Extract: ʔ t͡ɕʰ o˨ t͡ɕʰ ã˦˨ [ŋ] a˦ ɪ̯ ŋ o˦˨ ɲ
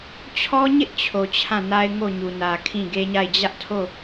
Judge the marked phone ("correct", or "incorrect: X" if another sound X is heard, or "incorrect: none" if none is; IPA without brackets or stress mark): incorrect: n